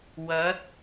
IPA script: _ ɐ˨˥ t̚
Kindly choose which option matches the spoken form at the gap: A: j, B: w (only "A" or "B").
B